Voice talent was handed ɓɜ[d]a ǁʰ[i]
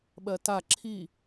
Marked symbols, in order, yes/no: no, yes

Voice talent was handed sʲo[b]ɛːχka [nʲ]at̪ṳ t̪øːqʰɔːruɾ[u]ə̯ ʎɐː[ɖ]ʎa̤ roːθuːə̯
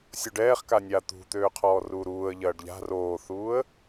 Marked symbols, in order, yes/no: no, yes, no, yes

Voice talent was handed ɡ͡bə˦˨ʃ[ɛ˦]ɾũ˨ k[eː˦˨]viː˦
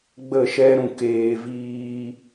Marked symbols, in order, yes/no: yes, no

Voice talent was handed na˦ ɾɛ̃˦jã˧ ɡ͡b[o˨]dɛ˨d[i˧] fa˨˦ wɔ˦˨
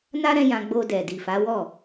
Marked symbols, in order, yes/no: no, no

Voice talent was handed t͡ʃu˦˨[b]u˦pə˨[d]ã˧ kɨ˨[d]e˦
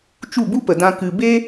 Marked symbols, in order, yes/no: yes, yes, no

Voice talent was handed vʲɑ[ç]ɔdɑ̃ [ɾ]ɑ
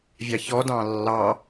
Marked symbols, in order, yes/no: yes, no

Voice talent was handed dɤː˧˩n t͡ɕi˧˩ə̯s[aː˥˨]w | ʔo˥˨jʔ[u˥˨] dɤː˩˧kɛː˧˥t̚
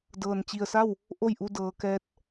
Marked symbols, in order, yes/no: no, no

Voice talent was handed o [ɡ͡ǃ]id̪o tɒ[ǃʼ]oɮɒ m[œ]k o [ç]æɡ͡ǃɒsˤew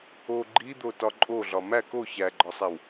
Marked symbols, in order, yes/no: yes, yes, no, yes

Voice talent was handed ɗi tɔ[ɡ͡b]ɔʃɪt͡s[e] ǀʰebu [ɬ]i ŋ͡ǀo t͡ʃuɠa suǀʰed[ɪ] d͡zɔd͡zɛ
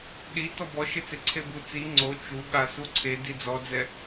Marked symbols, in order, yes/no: no, yes, no, no

